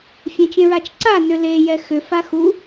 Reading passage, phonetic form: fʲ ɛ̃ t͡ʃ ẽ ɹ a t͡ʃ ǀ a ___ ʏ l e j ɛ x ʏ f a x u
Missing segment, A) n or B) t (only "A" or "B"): A